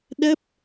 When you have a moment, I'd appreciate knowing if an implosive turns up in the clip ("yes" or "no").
yes